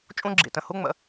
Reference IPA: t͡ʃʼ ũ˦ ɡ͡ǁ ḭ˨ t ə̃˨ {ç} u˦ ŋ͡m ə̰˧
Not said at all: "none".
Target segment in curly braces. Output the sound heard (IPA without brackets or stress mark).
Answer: h